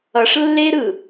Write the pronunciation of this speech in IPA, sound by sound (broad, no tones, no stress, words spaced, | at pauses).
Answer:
ʌʂlːeɾɯ